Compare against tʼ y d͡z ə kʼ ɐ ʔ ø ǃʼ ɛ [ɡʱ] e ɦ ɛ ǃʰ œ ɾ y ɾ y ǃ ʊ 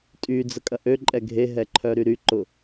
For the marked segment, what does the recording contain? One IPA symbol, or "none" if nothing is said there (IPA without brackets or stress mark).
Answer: ɡʱ